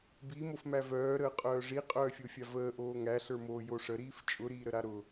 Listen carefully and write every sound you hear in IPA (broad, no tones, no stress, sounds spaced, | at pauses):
b i m o f m æ v œː ɾ əː qʼ œː ʐ i qʼ œː fʲ o fʲ a v əː ʔ oː ŋ æ ɬ ə˞ m oː j o ʂ ə ɾ iː f t͡ʃʼ ʊ ɾ iː ɾ ə ɾ a ɾ ʊ